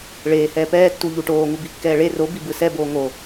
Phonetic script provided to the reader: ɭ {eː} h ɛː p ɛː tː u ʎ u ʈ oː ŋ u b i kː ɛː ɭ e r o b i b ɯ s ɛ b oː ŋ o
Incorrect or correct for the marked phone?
correct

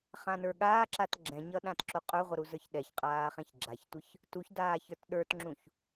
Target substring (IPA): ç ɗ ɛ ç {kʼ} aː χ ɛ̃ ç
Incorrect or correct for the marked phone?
incorrect: qʼ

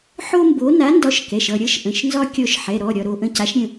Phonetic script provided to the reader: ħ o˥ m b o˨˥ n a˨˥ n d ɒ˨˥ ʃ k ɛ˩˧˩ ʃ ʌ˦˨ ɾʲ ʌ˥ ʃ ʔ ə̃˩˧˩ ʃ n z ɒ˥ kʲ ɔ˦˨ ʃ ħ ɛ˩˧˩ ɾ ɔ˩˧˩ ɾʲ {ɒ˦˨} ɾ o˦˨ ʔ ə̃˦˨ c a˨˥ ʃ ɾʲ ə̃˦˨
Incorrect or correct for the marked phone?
correct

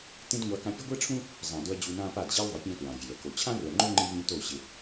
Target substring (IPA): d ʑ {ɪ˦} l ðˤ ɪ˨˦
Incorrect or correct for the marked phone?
incorrect: i˦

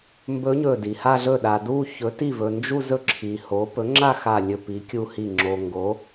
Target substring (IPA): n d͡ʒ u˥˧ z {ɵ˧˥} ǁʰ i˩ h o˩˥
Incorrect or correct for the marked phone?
incorrect: ɵ˥˩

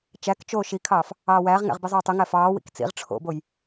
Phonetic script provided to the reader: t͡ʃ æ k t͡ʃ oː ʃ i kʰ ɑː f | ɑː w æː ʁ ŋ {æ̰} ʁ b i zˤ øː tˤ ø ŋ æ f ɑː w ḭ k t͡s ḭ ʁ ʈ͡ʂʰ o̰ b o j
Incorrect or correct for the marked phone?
correct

